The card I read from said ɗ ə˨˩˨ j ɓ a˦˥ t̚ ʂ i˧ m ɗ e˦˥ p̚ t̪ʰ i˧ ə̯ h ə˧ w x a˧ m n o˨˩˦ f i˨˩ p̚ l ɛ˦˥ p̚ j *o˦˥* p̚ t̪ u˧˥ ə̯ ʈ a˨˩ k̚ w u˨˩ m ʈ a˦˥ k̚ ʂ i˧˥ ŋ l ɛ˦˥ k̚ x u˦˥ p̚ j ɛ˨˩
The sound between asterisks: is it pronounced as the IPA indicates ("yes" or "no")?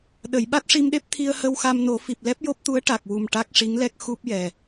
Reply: yes